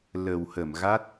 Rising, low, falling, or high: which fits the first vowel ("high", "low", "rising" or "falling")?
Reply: low